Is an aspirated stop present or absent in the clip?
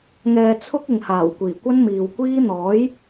present